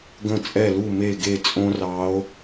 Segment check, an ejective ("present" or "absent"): present